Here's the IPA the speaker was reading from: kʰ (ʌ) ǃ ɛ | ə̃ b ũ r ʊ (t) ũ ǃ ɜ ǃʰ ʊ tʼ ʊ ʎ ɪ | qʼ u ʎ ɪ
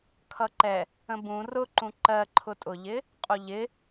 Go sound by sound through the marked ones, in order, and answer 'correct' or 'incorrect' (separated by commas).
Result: correct, incorrect